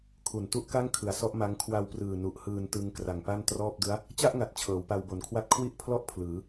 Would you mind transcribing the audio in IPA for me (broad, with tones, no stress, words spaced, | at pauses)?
kʰu˨˩ntu˥˩ʔka˥˩ŋ kʰɯ˨˩a̯sɔ˥˩ʔma˦˥ŋ kʰwa˧wprɯː˨˩ nu˨˩ʔ hɯː˧ntɯ˧ŋ kra˨˩ŋpa˥˩ntrɔː˥˩p̚ dɯ˦˥a̯ | t͡ɕa˥˩ʔŋa˨˩t̚ t͡ɕʰɤː˩˦wpa˧wbo˨˩nkʰwa˥˩t̚ kʰwi˥˩ʔpʰlɔ˥˩ʔ pʰlɯː˩˦